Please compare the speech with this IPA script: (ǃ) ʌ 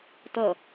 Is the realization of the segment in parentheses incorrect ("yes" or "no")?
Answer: yes